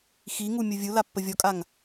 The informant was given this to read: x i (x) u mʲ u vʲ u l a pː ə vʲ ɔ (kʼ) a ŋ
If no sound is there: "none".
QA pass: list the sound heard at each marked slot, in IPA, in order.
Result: ŋ, kʼ

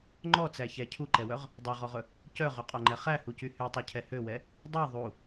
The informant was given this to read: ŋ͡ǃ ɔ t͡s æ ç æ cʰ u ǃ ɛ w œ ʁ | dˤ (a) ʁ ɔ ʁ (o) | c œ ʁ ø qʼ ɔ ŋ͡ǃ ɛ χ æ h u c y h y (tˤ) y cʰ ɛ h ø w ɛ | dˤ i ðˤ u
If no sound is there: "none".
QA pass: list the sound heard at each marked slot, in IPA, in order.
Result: ɑ, ɵ, tˤ

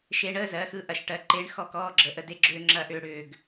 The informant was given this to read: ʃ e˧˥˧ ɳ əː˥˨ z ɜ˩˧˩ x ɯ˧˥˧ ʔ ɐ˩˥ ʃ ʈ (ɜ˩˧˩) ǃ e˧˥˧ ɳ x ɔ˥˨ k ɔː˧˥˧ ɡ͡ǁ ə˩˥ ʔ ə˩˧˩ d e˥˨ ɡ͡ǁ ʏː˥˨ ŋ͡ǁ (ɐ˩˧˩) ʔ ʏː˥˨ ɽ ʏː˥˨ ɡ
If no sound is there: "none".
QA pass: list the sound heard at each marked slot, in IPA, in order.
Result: ɜ˩˧˩, ɐ˧˥˧

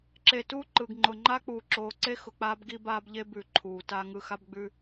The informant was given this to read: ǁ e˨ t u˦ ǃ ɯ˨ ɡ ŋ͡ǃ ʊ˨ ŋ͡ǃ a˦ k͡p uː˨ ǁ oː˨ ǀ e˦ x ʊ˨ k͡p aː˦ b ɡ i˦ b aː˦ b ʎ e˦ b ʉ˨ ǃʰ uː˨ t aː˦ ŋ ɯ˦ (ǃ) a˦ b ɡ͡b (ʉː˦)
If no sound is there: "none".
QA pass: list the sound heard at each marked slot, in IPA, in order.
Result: x, ʉː˦

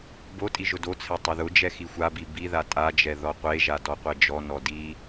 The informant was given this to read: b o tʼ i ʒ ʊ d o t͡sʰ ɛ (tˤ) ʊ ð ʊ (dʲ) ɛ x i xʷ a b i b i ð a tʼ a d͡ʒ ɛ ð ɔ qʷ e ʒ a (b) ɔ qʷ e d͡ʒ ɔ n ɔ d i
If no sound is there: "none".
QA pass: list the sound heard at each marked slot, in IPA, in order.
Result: tˤ, d͡ʒ, d

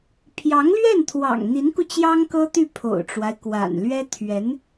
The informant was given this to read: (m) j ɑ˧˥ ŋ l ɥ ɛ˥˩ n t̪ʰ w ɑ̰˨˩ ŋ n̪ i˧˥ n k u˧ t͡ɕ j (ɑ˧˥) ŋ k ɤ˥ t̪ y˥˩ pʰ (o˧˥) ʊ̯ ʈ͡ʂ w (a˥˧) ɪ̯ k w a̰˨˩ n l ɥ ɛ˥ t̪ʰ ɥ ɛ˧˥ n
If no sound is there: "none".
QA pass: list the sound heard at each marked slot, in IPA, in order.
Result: pʰ, ɑ˥, o̰˨˩, a˦

